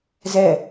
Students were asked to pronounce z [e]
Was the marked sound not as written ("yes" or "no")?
yes